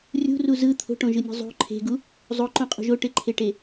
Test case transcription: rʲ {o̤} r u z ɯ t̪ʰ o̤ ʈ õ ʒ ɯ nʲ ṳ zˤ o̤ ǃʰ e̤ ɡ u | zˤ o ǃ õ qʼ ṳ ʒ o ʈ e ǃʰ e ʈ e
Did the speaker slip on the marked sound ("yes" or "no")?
yes